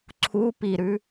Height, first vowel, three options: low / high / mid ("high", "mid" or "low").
high